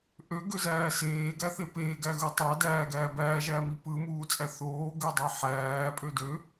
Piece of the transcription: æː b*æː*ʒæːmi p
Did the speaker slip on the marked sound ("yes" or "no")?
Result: no